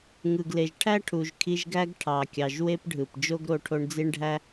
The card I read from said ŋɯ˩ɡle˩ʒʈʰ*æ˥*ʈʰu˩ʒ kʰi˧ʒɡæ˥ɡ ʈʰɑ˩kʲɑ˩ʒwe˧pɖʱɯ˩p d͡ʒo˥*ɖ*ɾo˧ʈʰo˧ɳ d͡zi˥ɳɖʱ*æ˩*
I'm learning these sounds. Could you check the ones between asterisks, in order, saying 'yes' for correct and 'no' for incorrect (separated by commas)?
yes, no, no